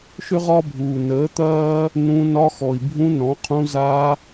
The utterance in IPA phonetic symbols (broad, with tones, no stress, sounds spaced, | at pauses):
ʃ ʏ˦ ʁ ɒ˦ bʱ uː˨ n əː˨˦ t̪ ɐː˦ | n ũ˧ n ɒ˧ x ɔ˨ i̯ bʱ ũ˧ n ɔ̃˨˦ qʰ ũ˧ z a˧